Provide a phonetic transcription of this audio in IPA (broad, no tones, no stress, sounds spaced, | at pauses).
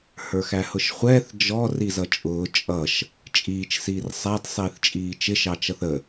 h ə˞ x æ h ʊ ʃ χʷ ɛː θ d͡ʒ ɔ r i z ʌ t͡ʃʼ ʊː t͡ʃʼ ʌ ʃ | t͡ʃʼ iː t͡ʃ s iː r sˤ æ d sˤ iː θ t͡ʃʼ iː t͡ʃ ɪ ʃ ɑ t͡ʃ ʌ θ ə